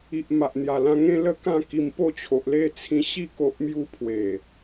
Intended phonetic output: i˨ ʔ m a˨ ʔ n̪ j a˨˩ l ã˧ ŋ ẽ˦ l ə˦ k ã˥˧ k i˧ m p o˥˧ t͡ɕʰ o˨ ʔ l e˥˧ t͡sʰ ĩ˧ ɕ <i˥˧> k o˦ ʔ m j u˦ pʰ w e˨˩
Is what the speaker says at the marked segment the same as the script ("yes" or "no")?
yes